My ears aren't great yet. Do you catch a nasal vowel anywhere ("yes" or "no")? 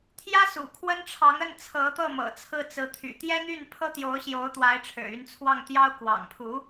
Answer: no